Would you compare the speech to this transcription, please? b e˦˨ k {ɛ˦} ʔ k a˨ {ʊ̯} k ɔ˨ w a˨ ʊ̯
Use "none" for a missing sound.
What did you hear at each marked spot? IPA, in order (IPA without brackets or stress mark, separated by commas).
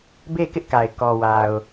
ɪ˦, ɪ̯